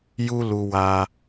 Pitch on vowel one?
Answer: high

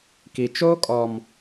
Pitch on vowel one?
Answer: low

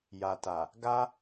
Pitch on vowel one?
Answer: low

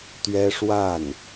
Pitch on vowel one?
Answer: high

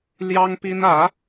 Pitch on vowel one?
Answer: high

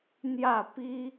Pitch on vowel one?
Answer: falling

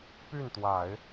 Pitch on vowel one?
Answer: falling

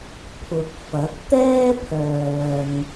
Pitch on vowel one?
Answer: low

